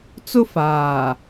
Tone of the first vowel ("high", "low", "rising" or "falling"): high